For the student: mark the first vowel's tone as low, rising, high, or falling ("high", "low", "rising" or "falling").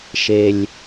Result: low